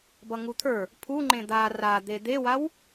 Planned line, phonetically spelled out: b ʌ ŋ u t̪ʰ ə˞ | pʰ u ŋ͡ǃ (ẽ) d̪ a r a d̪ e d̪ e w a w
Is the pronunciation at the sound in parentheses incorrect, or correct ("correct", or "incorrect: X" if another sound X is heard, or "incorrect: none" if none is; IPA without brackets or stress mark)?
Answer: correct